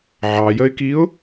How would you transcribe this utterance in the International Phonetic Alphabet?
ʕɑjəɪ̯kiʊ̯

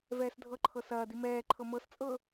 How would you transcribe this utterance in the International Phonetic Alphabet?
vɛːsdʱɤǃʰɤ sɐːdi mɛːǃʰɤ mɤst͡sʼɤ

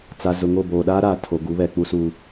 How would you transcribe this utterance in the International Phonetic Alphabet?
t͡sa˨zʊ˨ŋo˦˨ boː˨ɗaː˦ɾaː˨tʰo˨ ɡu˨˦βɛ˨k͡pu˦su˦

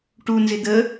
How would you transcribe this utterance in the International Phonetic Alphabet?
ʈunzɪ d̪ə

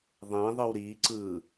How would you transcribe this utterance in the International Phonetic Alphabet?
ðˤẽðˤɯw ɾi ǀɯ

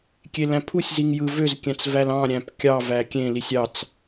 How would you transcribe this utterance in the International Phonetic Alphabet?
kʲelæ̃pʰusʲziŋ jɯvøz kʲæ̃t͡svælɑ̃ ɾʲæ̃pkʲɑ vækʲẽlisʲ ɑt͡s

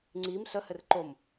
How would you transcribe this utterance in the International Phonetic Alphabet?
ŋ͡ǀim ɬə hɘrǃom

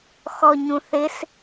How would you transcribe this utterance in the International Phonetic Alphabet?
xɔɲũθɪs

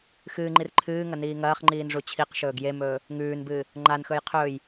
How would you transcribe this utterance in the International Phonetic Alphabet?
xɨːŋ͡ǃir ǃʰɨːŋɐ niːŋɐːχŋ͡ǃiːn ʐut͡ɕʰiqʃɵːɡ jemɵː | ŋʉːnbɨː | ŋ͡ǃanxɵj qʰɵːj

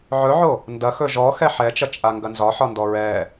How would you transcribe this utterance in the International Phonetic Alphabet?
ʕɵʕo | ndɐxɵ ʒɔxɛ ħɛt͡ʃɐt͡ʃʼa ŋɡɐnzɒħɒndɔ ɹɛ

